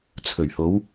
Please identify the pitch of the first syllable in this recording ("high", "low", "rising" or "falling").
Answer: low